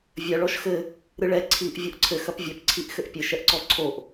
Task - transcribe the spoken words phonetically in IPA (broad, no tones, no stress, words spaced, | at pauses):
vʲɐ ɭɔʃxɘ | ɾɨɭɛ ǀʰiʔ vʲɔʔǀʰɘ xɐpvʲɐp ǀʰiʔxɘʔpʲɘ ʃɛʔǀɔǀʰoʔ